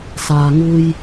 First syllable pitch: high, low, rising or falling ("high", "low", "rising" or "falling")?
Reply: low